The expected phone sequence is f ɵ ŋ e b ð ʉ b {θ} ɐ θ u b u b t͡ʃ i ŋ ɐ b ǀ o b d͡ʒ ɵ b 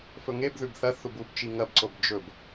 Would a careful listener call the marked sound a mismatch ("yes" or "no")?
no